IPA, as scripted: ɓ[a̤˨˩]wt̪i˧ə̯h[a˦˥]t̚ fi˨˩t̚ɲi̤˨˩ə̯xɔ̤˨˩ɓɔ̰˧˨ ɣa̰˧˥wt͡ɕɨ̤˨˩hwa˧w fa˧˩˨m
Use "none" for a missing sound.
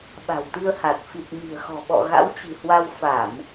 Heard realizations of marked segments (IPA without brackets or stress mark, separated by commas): a̤˨˩, a˨˩